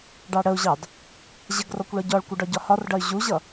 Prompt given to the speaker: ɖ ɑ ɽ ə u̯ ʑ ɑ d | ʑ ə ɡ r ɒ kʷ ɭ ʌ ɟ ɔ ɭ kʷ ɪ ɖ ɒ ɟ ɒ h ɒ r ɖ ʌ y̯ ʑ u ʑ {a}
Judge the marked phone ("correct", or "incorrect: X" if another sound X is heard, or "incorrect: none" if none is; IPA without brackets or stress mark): incorrect: ʌ